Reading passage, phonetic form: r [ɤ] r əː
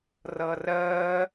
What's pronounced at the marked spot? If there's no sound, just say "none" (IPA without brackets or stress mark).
ɤ